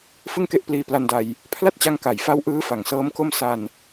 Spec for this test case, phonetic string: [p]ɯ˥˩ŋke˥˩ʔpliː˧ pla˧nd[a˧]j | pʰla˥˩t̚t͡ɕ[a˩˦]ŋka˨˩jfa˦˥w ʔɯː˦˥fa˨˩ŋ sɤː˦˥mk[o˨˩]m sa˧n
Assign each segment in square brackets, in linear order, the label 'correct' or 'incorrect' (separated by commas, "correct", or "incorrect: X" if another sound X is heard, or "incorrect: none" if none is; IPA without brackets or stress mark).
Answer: incorrect: f, correct, incorrect: a˦˥, incorrect: o˥˩